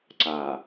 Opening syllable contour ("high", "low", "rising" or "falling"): low